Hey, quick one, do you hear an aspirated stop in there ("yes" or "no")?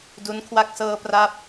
yes